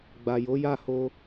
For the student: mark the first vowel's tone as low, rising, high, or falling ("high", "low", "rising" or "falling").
low